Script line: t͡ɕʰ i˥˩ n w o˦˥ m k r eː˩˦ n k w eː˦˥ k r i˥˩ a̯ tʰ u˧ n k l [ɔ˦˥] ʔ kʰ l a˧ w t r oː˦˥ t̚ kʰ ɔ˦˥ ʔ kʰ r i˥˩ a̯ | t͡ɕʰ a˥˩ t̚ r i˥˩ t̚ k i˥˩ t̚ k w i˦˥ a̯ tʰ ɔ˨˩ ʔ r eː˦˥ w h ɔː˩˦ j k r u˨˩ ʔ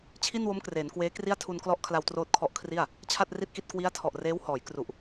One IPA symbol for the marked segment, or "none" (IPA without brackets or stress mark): ɔ˦˥